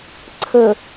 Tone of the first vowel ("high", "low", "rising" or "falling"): low